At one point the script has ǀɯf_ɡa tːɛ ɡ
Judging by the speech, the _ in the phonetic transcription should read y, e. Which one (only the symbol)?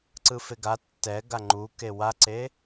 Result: e